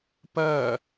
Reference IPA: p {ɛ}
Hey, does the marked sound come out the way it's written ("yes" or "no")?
no